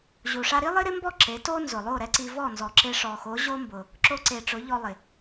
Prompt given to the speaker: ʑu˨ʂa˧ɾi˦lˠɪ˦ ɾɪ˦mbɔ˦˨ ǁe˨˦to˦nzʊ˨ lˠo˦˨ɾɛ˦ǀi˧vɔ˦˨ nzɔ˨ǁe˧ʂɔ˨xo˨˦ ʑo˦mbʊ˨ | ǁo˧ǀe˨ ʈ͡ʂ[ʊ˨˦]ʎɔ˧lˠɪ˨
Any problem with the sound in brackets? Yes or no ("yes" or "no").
no